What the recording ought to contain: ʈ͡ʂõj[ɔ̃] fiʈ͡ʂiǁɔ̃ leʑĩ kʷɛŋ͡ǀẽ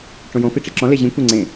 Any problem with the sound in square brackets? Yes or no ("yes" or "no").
yes